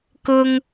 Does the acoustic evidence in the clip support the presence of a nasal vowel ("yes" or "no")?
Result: no